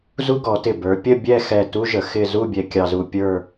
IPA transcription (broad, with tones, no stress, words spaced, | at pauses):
zu˥ɡɔ˩˧tɪ˧˩ bə˞˩˧ pʲə˥˧bʲɛ˥˧xɛ˧˩ tu˥ʒə˩˧ xɪ˥˧ zu˥˧bʲɛ˧ kʲɑ˧zu˧ pʲə˞˥˧